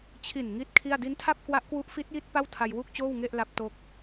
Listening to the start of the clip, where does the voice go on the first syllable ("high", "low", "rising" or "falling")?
low